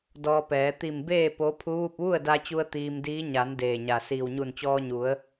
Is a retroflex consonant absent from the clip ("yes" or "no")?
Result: yes